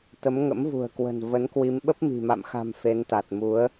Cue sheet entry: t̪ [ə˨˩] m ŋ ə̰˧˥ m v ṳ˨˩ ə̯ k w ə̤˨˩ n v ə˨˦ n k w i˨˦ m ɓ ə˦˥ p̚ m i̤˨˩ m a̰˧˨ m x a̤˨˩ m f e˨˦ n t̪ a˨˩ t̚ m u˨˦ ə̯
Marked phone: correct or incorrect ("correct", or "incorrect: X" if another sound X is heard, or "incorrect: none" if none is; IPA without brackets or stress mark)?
incorrect: ə˨˦